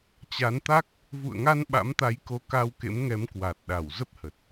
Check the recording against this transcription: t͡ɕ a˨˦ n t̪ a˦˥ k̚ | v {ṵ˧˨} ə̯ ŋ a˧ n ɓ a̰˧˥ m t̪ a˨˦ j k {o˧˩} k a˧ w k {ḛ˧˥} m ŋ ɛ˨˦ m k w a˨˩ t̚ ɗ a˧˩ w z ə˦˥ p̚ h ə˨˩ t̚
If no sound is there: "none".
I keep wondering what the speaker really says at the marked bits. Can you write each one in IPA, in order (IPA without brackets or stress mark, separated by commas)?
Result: ṵ˧˨, o˨˦, ḛ˧˥